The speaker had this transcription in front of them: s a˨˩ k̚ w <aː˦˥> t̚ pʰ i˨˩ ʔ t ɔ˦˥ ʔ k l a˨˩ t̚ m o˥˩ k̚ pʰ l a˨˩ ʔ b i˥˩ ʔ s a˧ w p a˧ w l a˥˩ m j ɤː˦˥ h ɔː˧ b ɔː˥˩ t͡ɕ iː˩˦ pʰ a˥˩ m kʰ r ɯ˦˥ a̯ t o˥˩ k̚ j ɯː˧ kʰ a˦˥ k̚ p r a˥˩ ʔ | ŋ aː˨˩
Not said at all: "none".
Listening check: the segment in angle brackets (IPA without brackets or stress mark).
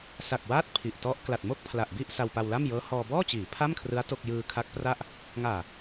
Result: aː˦˥